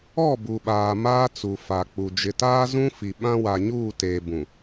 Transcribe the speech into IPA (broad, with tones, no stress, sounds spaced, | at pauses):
ɔ˦˨ b u˨ ɓ aː˨ m aː˦ t͡s u˨ f a˨ k͡p u˨ d͡ʒ ɪ˨ t aː˦ z ũ˦ f i˨ ɓ ã˦ w a˨ ɲ uː˦˨ t eː˨ b ũ˨